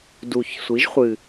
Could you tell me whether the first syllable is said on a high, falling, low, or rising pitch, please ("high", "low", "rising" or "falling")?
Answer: low